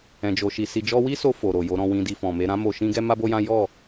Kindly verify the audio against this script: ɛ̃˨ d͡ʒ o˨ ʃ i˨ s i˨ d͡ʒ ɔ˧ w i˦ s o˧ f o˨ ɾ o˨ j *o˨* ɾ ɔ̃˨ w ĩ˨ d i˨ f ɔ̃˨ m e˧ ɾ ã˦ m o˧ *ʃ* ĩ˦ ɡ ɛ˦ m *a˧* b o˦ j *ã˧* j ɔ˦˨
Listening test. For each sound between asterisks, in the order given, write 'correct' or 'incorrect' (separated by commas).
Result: correct, correct, incorrect, incorrect